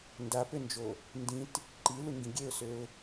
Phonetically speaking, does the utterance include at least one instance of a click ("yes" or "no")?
yes